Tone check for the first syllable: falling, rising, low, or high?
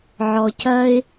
low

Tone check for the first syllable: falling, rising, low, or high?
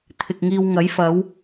low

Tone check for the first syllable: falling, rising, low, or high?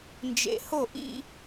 low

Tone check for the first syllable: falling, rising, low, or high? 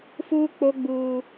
high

